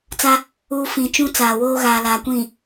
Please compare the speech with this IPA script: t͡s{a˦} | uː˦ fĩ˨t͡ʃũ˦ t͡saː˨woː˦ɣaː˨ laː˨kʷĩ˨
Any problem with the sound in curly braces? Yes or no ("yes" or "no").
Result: no